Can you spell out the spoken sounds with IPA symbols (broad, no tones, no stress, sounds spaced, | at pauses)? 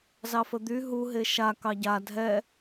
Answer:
z ɑ f ə d̪ y ɦ u ɦ e ʃ a k ɑ ɟ a dʱ ɛ